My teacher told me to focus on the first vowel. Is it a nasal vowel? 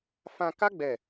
yes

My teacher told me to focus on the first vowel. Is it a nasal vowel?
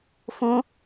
yes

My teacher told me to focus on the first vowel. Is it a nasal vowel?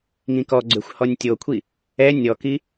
yes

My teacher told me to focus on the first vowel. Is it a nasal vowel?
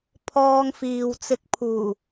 no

